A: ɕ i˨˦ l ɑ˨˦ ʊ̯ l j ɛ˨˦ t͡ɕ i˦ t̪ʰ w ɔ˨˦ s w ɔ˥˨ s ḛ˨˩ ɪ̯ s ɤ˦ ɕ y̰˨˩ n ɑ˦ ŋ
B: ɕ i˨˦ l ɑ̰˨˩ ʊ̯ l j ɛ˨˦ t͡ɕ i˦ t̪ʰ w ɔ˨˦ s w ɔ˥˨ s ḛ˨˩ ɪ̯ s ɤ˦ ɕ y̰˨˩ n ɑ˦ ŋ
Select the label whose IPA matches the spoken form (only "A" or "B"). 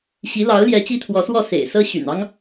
A